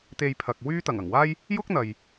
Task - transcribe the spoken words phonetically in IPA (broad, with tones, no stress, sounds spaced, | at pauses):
t̪ e˧ j pʰ ɐ˨ k̚ w yː˥ t̪ ɐ˨˩ ŋ ɐ˨˩ ŋ w aː˥ j | j ʊ˥ k̚ n̪ ɐ˨ j